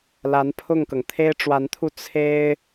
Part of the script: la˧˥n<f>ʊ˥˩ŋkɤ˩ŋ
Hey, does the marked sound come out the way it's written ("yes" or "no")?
no